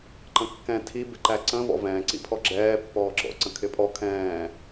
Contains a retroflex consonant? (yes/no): no